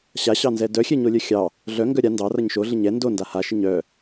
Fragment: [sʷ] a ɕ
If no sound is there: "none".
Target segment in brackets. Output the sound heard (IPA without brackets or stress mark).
ɕ